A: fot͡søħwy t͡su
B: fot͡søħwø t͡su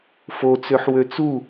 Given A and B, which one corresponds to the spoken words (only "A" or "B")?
B